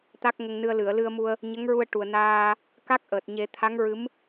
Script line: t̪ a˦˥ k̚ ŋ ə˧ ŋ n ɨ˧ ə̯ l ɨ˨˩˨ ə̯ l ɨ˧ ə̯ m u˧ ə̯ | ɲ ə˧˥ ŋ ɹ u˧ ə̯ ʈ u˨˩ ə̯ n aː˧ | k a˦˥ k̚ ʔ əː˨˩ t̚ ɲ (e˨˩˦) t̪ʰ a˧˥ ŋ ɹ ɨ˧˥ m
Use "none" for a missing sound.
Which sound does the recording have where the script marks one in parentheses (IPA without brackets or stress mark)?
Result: e˨˩˦